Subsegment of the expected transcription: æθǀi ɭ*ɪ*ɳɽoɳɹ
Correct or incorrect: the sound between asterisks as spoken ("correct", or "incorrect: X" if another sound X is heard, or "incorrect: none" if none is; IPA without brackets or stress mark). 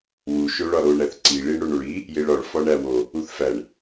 incorrect: i